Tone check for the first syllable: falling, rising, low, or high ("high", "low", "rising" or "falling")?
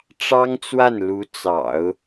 high